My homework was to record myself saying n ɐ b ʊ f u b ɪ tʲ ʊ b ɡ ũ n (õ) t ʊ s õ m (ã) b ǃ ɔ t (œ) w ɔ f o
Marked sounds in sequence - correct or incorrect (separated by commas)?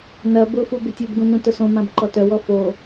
incorrect, correct, correct